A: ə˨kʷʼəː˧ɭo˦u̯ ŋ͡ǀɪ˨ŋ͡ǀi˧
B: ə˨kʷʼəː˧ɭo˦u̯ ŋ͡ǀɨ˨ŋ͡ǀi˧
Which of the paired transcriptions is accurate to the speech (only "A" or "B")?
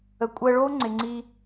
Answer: A